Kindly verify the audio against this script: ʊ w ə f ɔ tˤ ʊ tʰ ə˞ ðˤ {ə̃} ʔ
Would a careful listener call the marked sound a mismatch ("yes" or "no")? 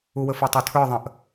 no